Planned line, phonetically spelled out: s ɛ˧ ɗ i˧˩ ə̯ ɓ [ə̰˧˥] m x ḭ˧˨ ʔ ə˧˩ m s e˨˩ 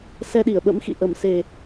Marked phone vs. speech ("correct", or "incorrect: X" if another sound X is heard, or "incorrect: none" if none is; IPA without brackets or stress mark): correct